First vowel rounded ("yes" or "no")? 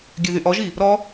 yes